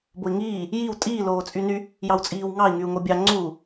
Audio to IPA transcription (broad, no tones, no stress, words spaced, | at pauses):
boi̯ŋiː | jiw tʼiː loːt͡sʼyny | jɑwt͡sʼiːwŋɑi̯ ŋyu̯ŋobʲɑ ŋ͡ǀu